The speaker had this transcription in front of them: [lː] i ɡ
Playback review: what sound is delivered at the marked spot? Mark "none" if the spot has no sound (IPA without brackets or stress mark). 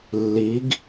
lː